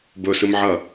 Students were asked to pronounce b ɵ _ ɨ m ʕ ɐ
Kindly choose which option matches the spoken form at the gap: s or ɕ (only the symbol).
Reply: s